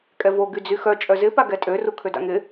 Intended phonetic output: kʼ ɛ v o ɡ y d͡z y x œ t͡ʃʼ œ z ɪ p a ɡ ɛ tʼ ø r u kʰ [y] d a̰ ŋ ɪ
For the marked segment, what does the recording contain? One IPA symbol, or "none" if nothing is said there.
ø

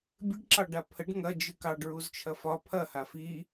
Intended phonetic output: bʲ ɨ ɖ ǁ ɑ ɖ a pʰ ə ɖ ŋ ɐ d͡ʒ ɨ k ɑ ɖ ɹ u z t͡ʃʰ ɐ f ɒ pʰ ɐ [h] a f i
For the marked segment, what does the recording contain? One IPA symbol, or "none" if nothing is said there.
h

